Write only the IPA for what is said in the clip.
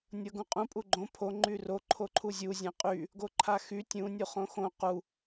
nʲɤɡũqʼũ pʼuɡ͡ǃõ pʰo ŋ͡ǃyro ǃʰoǃʰuzʲu zʲãqʼy | ɡoǃʰaxy tʲũ nʲuχõxõ qu

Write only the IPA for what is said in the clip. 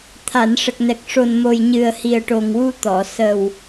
t̪ʰa˨˩˨nʂə˨˩k̚nɛ˨˩k̚ ʂo˨˩nmo˨˩j ɲɨ˨˩ə̯hi˨˩ə̯ʈo˨˩ŋwu˧ t̪ɔ˨˩˨ sə˨˩w

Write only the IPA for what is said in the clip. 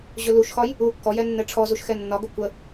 ʑɵluʃxɒj | u kːɔjɛ nːɛʈ͡ʂʰɔzuʃ xɛnːɒɡə kʷə

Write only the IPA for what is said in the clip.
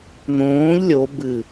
n̪õːʎ lʲo bɨ

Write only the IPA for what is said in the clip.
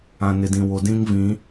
ã˨nɪ˨dĩ˨wo˨ dĩ˦ŋ vĩ˨˦

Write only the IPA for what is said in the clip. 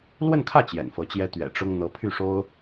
lwə˥˧nkʰä˥˩ t͡ɕjɛ̰˨˩nfɤ˧˥t͡ɕjɛ˥ t̪ɥɛ̰˨˩ʈ͡ʂʊ˥ŋ n̪ɤ˧˥pʰy˥˩ʂo˥ʊ̯

